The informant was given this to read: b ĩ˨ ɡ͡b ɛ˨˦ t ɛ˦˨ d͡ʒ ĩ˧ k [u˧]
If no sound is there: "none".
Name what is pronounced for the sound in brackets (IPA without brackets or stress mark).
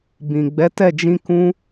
ũ˧